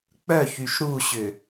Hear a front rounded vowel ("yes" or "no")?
yes